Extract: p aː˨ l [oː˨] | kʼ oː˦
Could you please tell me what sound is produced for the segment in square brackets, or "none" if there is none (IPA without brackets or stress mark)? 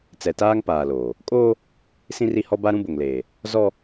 oː˨